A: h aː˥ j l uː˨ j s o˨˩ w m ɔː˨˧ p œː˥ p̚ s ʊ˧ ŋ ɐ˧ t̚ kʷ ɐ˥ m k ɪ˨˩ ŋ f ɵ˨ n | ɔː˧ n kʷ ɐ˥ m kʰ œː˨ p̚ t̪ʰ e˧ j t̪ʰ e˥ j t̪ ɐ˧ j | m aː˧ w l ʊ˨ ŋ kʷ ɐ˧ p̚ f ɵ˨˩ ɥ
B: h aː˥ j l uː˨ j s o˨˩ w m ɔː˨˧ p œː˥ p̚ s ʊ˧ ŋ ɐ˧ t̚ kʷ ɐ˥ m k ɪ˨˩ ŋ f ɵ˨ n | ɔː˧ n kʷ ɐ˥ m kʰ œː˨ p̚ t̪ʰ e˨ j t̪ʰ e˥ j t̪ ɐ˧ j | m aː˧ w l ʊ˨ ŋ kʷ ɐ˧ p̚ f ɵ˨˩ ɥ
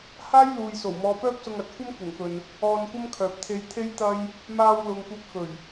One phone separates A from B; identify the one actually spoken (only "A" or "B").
A